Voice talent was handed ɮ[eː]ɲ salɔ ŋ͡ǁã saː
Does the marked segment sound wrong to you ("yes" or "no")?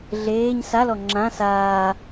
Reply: no